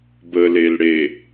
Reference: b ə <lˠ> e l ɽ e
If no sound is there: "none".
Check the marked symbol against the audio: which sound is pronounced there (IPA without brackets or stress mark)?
l